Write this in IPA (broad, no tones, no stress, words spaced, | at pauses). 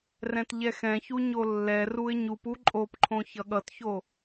rɛ̃tʎɛxɛ̃çu ɲolːɛruɪ̯ ɲupu ǃʼopǃʰõ çʌɠʌtço